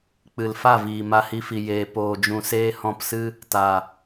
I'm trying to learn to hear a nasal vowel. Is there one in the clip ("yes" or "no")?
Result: yes